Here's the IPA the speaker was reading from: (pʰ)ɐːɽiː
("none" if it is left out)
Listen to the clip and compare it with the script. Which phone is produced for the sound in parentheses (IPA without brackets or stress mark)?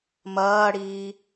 m